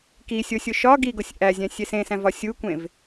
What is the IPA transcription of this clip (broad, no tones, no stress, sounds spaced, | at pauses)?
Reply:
k i sʲ o sʲ o ʃ ɒ ɡ i ɡ o sʲ ʔ æ zʲ æ̃ sʲ e s ẽ s æ̃ v ɒ sʲ u kʷ ẽ v